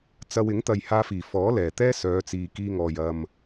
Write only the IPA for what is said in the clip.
t͡s ɐ˧ w ɪ˨˥ ŋ t̪ ɐ˨ j h aː˧ f iː˨˩ f ɔː˨˥ l ɛː˨˩ t̪ ɛː˥ s œː˨˧ t͡s iː˨ k iː˧ ŋ ɔː˨ j ɐ˨ m

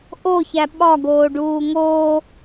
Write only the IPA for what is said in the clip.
ʔ o ç æ ɓ ɒ ɡ oː ɖ uː ŋ oː

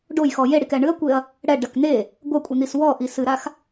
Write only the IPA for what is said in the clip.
ɖ o j x ɔ j e ɽ i k ɛ ɳ ɨ ɐ̯ kʷ e ɐ̯ | ɽ ɛ ɖ ɐ k n̪ e | ɡʷ ɐ kʷʼ i n̪ i s w ɔ ʔ i s ɨ ɾ a x

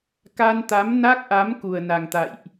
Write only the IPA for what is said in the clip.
k a˧ n t̪ a˨˦ m n a˦˥ k̚ ʔ a˨˦ m k u˨˩ ə̯ n a˨˩ ŋ t̪ a̰˧˨ j ʔ

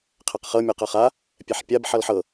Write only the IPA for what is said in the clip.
qʰ ɛ q χ ɤ mʲ o q ʌ χ a | pʲ ɛ ħ pʲ a b ħ ʌ l ħ ɤ

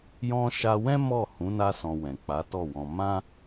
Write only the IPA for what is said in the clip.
j ɔ̃˦ ʃ a˧ w ɛ̃˦ m ɔ˦˨ h ũ˨˦ n a˦ s ɔ̃˧ w ɛ̃˨ k͡p a˨˦ t ɔ˦˨ w ɔ̃˧ m ã˦

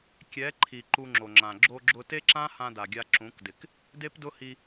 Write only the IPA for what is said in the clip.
kʲ ɛ˨˦ ǃʰ i˨ ǃ u˧ ŋ͡ǁ o˨ ŋ͡ǁ ã˨ ɡ͡ǁ o˧ ɡ͡ǁ ʊ˧ t e˦ ǁ ã˦ h ã˧ d a˨ ɡʲ a˧ ǁ ũ˨˦ k d ɪ˨ k | d e˦ p d ʊ˦ h i˧

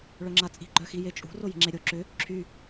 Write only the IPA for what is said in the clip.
ɭ œ ŋ͡ǁ a t͡sʼ i̤ ɡ͡ǃ œ x i j e t͡ʃʼ ṳ r o j i̤ ŋ͡ǁ e ɾʲ o ǁ ʏ | ǁʰ y

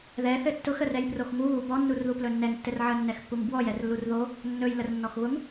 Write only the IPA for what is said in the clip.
ð ɛ θ ɘ tː ʊ x ə r ɛ j p r o x ŋ u β u b ɔ nː u r ð u p l ɵ nː ɛ ŋ tː ɘ r ʕ ə nː ɛ x pː u ŋ b w ɔ j ɛ r lː u r ð o | nː ɵ j l ə r nː ɔ x β ʊ ŋ

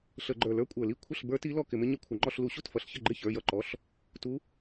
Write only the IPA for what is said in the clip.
ɬ ə˧˩˧ ɡ͡ǃ ə˞˧˩˧ l ə˞˩˧˩ kʷʼ ə˞˧˩˧ l i˩˧˩ kʷʰ ə˥˩ ɬ b ə˞˧˥ t i˧˥ l ɔ˥˩ k ɪ˧˩˧ m ɪ˧˥ ɲ ə˧˥ kʷʰ ə˧˩˧ ŋ͡ǃ ɔ˥˧ ɬ l u˧˩˧ ɕ u˥˩ t f ʌ˩˧˩ ɬ ç ə˥˩ ɡ͡ǃ ɪ˥˩ ç ə˞˩˧˩ j ʌ˥˩ ǃ ɔ˩˧˩ ɬ | t u˧˥

